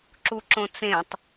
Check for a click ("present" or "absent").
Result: present